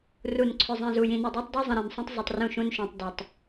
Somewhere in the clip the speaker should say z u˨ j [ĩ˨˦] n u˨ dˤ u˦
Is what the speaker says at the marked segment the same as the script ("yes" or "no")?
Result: no